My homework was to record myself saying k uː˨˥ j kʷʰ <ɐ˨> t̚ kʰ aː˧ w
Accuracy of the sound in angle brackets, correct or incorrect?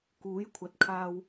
correct